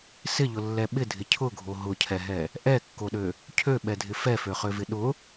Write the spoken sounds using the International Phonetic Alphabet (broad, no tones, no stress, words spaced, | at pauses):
sɪʎʊlːɛ ɓɪdʱɪ cʰʊɡʱo ɦʊcʰɛɦɛ | ʔɛkːoɗø | cʰøɓɛdʱɪ fɛføχøvɪ ɗʊ